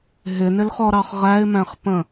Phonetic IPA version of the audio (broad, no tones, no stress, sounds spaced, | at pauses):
ɦ ɪ n ɪ l χ ɔ ɾ ɑ χ ʁ æ ɪ̯ m æ̃ χ p ə̃